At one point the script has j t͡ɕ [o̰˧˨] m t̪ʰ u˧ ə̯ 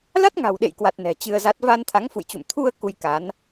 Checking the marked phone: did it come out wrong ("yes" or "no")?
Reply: yes